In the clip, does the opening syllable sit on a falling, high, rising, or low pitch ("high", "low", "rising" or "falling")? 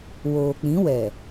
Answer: low